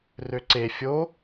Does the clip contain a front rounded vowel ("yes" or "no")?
yes